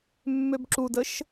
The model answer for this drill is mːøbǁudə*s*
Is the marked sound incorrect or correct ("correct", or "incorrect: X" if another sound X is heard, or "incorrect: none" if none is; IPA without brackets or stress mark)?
incorrect: ʃ